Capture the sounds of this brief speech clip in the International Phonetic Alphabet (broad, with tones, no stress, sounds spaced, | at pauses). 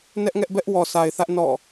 n ɛ˦ ʔ ŋ ɛ˦ ʔ b ɛ˦ ʔ w ɔ˨ sʰ a˨ ɪ̯ θ ä˦ ʔ n ɔ̰˦˨